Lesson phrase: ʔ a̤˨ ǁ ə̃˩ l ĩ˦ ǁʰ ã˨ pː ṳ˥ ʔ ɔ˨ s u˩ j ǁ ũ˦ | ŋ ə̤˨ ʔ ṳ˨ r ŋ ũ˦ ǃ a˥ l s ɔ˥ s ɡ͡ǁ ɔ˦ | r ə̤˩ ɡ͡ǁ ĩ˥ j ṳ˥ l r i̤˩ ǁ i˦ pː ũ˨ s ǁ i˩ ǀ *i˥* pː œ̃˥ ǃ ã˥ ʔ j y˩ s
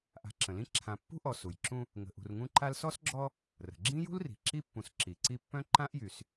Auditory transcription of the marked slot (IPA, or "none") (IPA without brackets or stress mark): i˦